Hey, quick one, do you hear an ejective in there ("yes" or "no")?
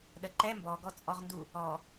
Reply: yes